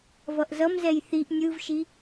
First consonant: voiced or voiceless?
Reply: voiced